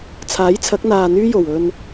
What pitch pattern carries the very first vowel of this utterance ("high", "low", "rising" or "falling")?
rising